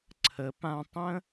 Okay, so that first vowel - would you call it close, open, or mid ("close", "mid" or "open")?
mid